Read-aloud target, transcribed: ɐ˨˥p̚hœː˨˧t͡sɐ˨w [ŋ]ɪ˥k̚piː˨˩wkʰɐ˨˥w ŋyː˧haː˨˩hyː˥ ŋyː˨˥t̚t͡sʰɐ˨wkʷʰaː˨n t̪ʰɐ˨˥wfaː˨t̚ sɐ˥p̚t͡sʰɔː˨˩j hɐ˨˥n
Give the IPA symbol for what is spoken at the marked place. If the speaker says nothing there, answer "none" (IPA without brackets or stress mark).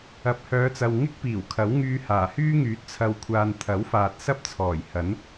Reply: ŋ